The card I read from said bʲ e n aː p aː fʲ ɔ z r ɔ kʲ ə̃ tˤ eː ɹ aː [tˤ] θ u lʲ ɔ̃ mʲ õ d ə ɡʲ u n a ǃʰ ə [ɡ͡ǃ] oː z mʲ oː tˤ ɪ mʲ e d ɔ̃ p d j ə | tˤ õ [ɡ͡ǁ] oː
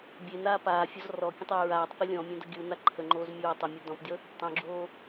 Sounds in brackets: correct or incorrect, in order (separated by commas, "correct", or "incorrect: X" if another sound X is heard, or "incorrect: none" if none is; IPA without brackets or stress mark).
correct, incorrect: ŋ͡ǃ, correct